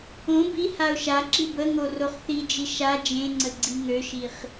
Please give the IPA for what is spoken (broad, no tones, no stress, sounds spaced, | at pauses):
õ b i h a ʊ̯ ʃ a ǁ i b ə ŋ o r o χ θ i d͡ʒ i ʃ a d͡ʒ ẽ ŋ͡ǀ ə ɡ͡ǀ i ŋ ø ʃ i χ